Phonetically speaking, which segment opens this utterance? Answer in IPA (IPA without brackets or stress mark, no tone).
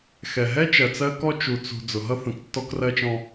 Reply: x